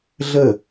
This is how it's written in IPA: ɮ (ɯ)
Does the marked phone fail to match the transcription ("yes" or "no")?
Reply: yes